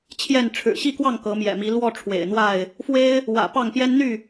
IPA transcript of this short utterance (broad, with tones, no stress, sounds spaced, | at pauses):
t͡ɕʰ j ɛ˥˨ n ʈ͡ʂʰ ɻ̩˨˩ ɕ i˥˨ k w ɑ˥˨ ŋ k ɤ˨˦ m j ɛ̰˨˩ m i˨˦ l w ɔ˥˨ ʈ͡ʂʰ w ḛ˨˩ ɪ̯ n̪ w a˥˨ ɪ̯ | f w e˦ ɪ̯ | w ä̰˨˩ p ɑ˥˨ ŋ p j ɛ˦ n n̪ y˥˨